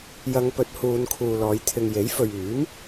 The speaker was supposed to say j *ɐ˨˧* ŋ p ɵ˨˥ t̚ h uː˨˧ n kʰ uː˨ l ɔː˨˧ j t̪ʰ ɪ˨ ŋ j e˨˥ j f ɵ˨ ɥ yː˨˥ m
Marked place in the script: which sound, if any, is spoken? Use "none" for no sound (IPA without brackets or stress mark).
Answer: ɐ˨˧